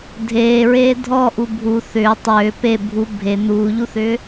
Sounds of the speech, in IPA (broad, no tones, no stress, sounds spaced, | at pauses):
dʱ eː ɹ eː dʱ ɔ ʔ u bʱ u θ ʏː tˤ ʏː p e bʱ u bʱ e n̪ uː ʎ u θ ʏː